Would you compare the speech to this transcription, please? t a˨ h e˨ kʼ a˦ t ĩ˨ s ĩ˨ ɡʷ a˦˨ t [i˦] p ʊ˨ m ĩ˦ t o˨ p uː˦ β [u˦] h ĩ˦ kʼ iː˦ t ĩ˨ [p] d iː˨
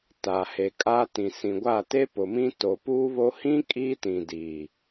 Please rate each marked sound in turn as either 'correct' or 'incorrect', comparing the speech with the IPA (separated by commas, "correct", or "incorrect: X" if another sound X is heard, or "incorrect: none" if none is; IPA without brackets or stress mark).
incorrect: e˦, incorrect: o˦, incorrect: none